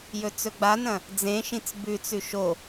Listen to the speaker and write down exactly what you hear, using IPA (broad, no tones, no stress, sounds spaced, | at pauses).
j ɵ t͡s ɵ ɡ͡b a n ɐ̃ | d͡z ẽ ʃ ĩ t͡s b ʉ t͡s ʉ ʃ o